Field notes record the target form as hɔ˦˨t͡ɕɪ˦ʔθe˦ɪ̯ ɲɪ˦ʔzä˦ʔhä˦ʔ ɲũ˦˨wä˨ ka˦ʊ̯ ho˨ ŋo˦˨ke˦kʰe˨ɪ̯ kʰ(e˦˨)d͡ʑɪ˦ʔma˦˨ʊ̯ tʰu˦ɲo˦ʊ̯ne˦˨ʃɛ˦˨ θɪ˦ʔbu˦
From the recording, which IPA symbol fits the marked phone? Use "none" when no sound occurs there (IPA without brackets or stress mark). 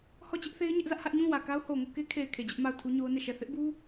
e˨